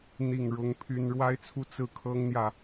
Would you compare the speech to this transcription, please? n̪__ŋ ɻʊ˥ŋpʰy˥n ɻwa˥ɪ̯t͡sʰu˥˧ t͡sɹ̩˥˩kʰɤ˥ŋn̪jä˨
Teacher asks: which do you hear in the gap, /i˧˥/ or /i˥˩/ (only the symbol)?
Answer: i˥˩